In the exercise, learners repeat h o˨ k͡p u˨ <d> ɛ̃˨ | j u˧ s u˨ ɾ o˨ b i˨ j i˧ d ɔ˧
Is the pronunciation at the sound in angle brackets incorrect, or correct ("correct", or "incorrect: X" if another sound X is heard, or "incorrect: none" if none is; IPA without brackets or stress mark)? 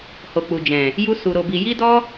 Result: incorrect: d͡ʒ